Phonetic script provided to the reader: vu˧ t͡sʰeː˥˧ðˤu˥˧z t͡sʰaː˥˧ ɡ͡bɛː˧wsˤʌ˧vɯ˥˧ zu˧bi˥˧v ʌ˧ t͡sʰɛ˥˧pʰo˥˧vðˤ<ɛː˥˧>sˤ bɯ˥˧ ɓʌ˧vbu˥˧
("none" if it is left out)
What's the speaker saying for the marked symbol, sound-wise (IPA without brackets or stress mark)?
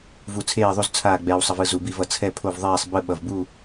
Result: ɛː˥˧